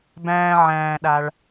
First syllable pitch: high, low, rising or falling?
low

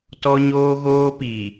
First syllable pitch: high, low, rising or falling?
high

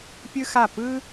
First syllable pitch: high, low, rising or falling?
high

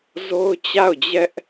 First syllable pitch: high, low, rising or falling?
high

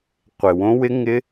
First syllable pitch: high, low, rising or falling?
low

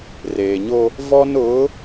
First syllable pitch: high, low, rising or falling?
low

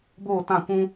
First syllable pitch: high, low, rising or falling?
falling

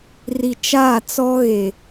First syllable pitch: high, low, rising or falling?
low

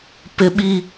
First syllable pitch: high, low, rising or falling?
high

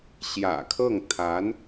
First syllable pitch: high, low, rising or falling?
low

